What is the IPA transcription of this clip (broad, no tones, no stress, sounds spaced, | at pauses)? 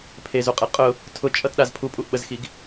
pʰ e z u qʼ e qʼ ʊ | tʰ ʊ t͡ʃʼ ʌ t ɗ a z pʰ u pʼ u ʔ ɓ ə z x i ɡ